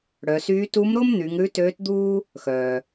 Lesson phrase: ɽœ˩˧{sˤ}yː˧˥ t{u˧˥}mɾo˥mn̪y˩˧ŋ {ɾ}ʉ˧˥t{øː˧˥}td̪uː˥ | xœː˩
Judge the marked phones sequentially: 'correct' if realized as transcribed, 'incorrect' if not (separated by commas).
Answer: incorrect, correct, correct, correct